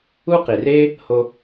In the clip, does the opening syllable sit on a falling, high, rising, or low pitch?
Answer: high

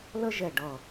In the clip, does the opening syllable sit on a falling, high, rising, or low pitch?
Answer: high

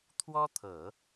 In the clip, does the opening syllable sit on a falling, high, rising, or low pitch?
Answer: high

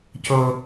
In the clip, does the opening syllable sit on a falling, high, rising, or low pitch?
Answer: high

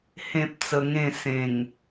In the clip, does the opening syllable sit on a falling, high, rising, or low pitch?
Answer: high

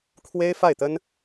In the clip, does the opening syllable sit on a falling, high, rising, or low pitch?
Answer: high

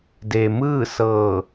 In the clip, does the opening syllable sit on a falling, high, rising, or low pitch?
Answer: low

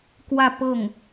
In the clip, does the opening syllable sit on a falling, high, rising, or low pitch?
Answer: falling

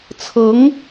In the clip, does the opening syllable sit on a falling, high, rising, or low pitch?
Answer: rising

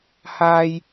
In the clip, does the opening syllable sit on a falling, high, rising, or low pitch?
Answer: high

